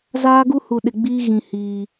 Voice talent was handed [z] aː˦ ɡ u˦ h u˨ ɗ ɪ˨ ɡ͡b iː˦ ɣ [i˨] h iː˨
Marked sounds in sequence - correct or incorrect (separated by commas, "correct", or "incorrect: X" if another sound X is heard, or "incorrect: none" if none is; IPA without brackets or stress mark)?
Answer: correct, incorrect: ĩ˨